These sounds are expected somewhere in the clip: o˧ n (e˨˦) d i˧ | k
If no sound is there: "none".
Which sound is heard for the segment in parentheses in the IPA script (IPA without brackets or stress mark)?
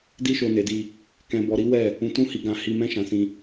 e˨